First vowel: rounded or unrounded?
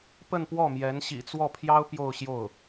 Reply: unrounded